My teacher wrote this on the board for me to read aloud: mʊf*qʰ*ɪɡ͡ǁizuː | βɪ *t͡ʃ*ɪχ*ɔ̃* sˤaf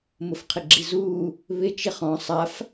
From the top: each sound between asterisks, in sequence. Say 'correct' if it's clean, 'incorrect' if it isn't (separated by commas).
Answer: correct, correct, correct